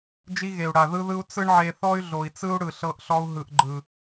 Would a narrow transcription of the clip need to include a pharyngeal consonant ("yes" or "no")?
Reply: yes